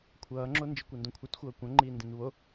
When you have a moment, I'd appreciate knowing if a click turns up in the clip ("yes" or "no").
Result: yes